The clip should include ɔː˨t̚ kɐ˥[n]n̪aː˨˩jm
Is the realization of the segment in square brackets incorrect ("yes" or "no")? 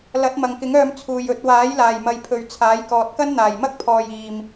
no